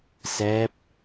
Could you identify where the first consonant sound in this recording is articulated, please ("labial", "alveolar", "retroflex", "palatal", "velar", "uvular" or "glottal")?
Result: alveolar